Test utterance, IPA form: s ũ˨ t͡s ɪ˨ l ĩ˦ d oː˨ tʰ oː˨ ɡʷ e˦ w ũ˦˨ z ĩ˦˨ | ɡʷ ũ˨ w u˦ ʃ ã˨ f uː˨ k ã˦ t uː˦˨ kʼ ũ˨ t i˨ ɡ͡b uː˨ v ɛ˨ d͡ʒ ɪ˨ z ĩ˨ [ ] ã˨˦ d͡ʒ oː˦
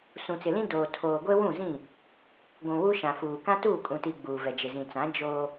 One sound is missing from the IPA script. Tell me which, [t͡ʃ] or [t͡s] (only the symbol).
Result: t͡s